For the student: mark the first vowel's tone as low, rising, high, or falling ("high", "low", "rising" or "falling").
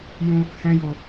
high